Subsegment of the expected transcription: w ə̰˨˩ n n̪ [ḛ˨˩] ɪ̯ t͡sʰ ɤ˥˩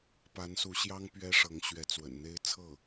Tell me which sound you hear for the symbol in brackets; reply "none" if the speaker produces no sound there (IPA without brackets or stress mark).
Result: e˥